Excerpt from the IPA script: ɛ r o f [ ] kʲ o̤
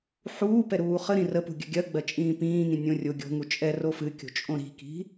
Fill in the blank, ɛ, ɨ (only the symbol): ɨ